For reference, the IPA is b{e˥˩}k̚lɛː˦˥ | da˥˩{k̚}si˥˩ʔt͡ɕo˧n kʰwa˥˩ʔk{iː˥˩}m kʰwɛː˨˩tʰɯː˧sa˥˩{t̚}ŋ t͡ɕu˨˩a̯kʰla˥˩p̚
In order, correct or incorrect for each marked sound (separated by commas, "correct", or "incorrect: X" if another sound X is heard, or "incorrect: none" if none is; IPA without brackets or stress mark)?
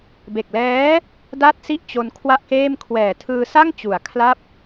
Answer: incorrect: e˨˩, incorrect: t̚, incorrect: eː˥˩, incorrect: none